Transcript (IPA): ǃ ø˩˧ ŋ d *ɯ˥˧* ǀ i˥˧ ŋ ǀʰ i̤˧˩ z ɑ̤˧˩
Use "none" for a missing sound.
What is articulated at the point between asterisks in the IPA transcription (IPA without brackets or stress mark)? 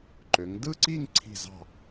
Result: ɯ˥˧